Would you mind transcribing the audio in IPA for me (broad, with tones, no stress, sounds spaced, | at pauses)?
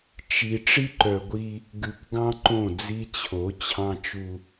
t͡ʃ i˨ ʈ͡ʂ i˦ ǃ œ˨ ɡʷ i˦ | ɡ ʉ˨ k ɡ ɑ̃˦ ǃ õ˦˨ d͡z i˦ t͡ɕʰ o˨˦ t͡ɕʰ ɑ̃˦ t͡ʃ u˦